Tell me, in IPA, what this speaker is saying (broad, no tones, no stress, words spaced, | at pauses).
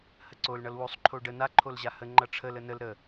həǀol ɳʌlwosˤ ǃʰoɖə na ǃʰolʑahə ŋ͡ǃʌʈ͡ʂʰəl ənəl ɾə